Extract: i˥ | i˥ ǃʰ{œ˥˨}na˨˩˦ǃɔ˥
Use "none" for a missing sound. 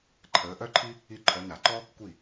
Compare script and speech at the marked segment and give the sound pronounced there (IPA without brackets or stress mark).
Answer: œ˨˦